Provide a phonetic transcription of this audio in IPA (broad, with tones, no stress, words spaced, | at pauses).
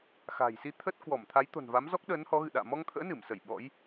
xa̤˨˩jsi˧ t̪ʰə˦˥t̚kwɔ˧˩m t̪ʰa˨˦jt̪o̤˨˩nva˨˦m zɔ˦˥k̚ɗəː˨˦nhɔ˨˦ ɣɨ̰˧˨ɗa̰ː˧˨ mɔ˧ŋt̪ʰə̰ː˧˥nɨ˧˩msə˧˩j ɓɔ̰˧˥j